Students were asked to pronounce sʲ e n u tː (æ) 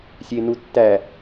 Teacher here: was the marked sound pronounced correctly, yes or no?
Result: yes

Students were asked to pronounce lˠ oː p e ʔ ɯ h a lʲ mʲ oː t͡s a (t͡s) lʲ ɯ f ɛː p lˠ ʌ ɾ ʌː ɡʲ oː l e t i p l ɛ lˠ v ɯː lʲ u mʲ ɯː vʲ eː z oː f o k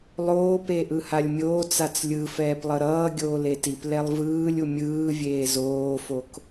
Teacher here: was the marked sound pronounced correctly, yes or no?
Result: yes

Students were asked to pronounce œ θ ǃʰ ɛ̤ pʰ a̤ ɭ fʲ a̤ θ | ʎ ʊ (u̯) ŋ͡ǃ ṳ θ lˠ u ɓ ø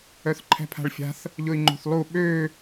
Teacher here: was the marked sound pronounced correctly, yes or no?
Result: no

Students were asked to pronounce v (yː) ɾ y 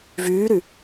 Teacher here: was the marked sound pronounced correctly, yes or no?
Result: yes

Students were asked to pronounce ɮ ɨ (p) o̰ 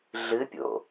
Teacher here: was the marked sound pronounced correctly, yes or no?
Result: no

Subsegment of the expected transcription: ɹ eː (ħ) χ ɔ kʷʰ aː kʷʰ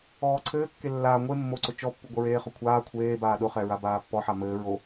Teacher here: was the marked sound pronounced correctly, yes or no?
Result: no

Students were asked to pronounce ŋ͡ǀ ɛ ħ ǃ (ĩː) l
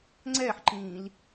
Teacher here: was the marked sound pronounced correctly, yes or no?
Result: yes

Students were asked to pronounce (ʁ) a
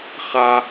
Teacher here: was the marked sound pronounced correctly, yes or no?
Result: no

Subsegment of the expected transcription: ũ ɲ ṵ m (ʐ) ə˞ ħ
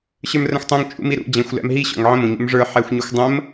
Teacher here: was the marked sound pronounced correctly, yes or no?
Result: yes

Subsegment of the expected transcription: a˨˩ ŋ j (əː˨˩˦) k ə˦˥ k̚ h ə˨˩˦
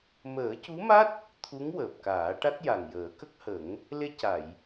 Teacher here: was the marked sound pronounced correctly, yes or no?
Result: yes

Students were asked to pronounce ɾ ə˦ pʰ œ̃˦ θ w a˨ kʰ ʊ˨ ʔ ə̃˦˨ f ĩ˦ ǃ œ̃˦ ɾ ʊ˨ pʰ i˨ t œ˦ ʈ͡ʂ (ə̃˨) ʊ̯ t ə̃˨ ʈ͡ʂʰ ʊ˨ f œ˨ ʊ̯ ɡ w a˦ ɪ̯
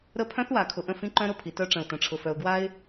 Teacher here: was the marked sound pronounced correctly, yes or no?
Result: yes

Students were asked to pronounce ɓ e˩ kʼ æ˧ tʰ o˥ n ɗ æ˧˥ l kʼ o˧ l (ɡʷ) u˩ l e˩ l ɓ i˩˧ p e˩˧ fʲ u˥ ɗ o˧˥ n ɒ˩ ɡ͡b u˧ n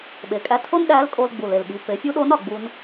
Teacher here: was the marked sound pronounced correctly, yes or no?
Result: no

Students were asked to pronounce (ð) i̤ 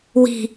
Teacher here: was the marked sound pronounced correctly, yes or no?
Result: no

